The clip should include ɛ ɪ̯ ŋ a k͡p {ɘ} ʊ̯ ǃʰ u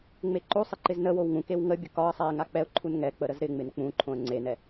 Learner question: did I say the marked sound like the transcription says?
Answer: no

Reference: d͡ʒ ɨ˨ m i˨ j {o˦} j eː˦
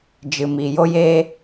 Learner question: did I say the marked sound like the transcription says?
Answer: yes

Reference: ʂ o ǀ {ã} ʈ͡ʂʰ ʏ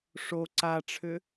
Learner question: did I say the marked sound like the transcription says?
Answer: no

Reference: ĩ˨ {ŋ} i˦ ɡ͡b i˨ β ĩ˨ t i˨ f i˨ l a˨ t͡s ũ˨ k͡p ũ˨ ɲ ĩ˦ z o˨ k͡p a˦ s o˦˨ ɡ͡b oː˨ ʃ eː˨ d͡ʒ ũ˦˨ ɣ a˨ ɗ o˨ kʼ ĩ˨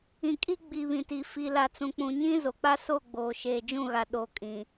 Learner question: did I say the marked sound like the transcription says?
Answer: no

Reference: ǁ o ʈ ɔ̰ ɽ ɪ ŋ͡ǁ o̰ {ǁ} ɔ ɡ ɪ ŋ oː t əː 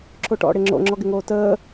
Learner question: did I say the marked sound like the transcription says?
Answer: no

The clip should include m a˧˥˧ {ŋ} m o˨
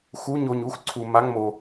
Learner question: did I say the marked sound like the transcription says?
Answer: yes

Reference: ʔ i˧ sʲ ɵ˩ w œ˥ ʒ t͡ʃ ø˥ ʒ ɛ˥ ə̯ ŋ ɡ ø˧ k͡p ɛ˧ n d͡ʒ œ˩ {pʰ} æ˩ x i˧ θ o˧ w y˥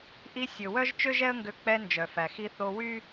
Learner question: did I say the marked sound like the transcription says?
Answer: no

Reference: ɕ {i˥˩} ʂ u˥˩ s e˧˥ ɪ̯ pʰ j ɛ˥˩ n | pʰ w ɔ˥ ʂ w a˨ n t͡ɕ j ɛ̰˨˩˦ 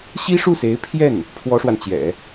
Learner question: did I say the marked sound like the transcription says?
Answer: no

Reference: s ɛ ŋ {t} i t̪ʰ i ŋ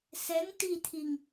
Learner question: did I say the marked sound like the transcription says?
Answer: yes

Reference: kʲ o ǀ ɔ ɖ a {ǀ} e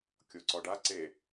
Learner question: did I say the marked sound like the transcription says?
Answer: yes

